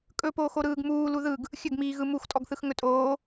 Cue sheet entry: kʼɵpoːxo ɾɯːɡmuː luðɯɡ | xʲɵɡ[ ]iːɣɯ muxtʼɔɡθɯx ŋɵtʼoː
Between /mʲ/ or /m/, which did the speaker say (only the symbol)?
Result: m